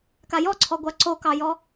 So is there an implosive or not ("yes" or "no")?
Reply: no